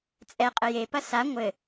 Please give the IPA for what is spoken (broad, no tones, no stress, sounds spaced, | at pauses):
t͡sʼ ɛ qʼ ɘ j e p ɐ s a ŋʷ ɘ